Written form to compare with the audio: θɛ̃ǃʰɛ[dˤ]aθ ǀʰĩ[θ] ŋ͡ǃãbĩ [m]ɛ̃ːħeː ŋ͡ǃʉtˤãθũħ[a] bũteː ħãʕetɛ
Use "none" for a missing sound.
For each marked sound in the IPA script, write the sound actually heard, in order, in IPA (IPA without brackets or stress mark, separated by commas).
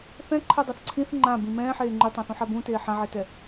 dˤ, θ, m, a